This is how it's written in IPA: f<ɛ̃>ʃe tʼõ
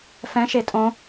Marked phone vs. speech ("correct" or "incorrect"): correct